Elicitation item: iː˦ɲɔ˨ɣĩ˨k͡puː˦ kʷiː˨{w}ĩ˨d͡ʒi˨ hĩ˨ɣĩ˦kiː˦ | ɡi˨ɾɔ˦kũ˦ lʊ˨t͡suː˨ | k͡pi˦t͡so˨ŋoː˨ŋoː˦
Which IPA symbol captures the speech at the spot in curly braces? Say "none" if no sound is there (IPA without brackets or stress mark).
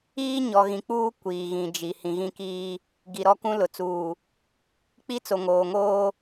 ɣ